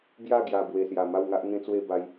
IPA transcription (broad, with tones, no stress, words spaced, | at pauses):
bja˥˧ɡja˨˩ bwe˨˩sja˨˩ ma˥˧wŋa˦ʔŋẽ˦t͡swe˥˧ ba˧j